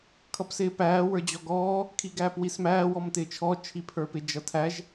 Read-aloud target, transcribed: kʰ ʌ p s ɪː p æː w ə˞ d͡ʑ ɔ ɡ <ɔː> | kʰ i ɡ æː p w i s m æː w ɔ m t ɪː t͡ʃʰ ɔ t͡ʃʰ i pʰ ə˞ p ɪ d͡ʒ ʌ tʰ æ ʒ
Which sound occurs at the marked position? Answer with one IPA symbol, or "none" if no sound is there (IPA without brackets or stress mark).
ɔː